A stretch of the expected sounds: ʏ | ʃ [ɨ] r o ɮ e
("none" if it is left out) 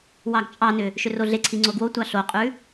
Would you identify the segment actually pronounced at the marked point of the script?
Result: ʏ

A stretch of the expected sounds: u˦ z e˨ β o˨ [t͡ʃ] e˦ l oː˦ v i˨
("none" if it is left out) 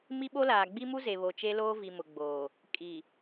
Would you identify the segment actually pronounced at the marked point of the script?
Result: t͡ʃ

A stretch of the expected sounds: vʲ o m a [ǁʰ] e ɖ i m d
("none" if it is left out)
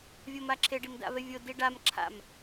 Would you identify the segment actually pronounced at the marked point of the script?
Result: ǁʰ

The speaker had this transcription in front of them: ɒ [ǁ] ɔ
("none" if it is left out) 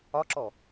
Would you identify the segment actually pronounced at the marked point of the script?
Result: ǁ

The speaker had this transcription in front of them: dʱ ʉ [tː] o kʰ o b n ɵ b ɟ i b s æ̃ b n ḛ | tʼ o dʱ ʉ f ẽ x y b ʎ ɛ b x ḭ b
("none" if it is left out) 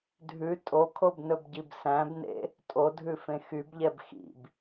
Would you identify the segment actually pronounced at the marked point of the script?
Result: tʼ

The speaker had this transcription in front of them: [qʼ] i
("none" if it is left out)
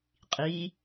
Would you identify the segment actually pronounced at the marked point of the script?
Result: qʼ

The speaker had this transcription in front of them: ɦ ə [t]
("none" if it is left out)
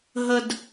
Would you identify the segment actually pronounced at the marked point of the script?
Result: d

